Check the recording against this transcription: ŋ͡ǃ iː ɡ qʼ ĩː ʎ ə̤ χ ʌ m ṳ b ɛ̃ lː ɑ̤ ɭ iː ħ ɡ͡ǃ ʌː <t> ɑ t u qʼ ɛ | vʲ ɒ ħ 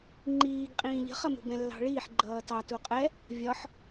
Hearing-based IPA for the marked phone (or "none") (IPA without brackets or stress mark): t